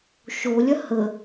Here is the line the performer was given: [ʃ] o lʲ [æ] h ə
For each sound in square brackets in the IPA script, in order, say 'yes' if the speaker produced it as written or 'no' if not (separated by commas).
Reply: yes, no